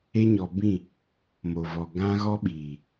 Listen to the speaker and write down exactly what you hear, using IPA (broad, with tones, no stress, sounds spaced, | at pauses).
e˦ ɲ ɔ˨ b ĩ˦˨ | m o˨ v ɔ˨ ɡ ã˦ ɣ ɔ˦ ɓ iː˨